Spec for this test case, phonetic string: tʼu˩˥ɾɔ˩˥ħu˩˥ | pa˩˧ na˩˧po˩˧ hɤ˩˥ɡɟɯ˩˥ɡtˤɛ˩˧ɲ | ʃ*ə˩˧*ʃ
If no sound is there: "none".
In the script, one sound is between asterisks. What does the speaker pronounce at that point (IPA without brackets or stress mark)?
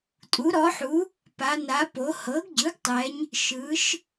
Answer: ɯ˩˧